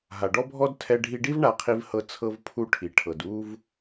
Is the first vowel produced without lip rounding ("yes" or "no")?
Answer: yes